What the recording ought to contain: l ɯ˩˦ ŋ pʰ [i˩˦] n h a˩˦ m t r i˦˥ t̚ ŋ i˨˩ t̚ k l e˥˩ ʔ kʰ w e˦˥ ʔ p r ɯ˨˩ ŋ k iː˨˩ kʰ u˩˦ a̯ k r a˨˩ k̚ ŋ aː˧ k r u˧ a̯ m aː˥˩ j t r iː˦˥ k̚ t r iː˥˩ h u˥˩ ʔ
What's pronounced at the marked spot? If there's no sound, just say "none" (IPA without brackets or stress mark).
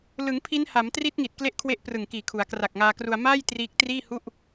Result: i˦˥